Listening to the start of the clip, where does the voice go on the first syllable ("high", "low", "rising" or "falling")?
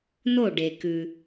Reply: falling